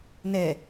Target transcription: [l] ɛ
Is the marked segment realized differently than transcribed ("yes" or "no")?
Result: yes